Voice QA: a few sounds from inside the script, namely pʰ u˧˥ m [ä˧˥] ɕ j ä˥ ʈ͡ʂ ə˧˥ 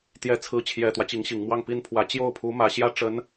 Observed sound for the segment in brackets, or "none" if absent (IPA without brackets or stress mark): ä˨˩